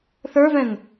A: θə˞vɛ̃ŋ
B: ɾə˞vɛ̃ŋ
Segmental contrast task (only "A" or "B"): A